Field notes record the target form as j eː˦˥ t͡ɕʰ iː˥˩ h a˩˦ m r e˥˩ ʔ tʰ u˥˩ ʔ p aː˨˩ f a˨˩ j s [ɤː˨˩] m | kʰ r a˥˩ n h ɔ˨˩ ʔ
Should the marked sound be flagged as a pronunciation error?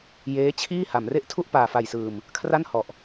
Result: yes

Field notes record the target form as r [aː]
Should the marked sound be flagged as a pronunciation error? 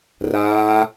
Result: no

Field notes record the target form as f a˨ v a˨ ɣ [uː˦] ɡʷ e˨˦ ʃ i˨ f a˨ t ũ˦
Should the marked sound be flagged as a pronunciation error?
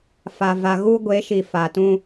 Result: yes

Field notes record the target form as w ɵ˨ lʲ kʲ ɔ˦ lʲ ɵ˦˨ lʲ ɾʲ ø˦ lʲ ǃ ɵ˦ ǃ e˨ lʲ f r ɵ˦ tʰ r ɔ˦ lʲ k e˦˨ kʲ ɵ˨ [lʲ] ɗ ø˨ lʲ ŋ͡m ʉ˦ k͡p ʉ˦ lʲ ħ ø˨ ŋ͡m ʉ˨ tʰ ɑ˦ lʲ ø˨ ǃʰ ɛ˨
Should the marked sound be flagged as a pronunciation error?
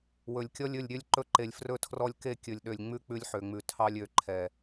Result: no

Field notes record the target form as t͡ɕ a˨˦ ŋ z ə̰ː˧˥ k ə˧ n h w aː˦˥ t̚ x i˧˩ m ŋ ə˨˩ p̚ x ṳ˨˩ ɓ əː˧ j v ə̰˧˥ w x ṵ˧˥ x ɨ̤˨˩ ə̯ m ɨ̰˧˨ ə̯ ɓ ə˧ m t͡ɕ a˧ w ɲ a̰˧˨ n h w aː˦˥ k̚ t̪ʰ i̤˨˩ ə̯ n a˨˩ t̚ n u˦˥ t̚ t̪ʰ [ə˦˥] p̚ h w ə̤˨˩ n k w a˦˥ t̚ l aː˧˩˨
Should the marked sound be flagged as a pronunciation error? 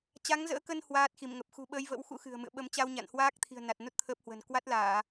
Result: yes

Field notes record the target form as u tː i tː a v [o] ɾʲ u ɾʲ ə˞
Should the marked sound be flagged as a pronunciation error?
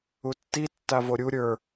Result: no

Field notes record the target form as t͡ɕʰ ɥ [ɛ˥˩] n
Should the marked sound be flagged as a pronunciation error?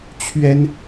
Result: yes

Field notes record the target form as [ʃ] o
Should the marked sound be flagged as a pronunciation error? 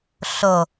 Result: yes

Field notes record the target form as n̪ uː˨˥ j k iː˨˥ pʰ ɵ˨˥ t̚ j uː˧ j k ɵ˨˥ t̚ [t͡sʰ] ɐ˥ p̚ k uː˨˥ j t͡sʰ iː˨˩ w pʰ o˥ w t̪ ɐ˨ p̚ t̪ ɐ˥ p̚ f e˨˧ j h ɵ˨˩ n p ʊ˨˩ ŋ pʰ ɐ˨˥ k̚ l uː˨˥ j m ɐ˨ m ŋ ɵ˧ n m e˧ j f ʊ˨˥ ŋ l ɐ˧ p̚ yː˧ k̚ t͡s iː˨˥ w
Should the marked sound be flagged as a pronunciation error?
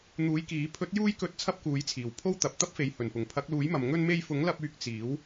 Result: no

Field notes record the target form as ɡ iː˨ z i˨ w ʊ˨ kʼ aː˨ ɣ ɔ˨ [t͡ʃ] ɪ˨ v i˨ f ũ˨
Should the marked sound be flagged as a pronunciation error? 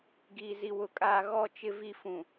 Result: no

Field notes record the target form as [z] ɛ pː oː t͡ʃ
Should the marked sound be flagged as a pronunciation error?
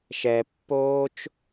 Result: yes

